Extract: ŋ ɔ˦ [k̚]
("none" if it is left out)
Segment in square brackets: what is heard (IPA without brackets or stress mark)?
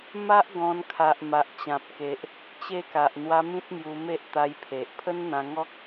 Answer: k̚